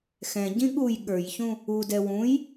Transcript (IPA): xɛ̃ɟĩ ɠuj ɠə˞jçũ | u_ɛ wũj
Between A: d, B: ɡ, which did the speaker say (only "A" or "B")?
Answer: A